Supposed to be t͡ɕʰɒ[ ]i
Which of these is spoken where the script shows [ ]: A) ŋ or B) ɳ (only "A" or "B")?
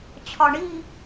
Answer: B